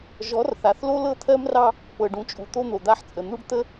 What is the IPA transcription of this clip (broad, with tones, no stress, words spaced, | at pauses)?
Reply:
ʒɔ˨˦rθa˨θlo˦ lɤ˦t̪ʰɜ˦mrɑ˦ | pɤ˨ɖũ˨t͡ʃʼu˨ t̪o˦n̪o˨d̪a˦ħt͡sʼə˨ n̪u˦ɖ t̪ə˦